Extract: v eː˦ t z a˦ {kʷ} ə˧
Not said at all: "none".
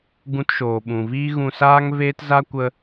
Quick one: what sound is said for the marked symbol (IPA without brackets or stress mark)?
kʷ